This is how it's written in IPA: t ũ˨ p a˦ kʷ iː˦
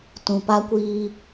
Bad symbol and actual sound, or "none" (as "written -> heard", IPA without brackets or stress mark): none